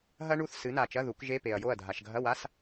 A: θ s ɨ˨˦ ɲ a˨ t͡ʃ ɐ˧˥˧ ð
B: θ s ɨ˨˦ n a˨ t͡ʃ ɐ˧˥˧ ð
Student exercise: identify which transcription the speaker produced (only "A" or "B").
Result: B